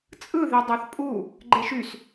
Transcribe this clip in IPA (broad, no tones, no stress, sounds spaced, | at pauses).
t͡sʼ ɯ ð e dˤ ɑ θ pʼ u | ɡ͡ǃ e ʃ y s